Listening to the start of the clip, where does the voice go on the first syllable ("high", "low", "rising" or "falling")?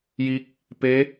rising